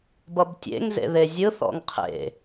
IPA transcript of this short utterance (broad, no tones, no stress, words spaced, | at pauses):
bʌbtʲḛŋ zḛðezʲɯ θɔ̰ŋqʰḛ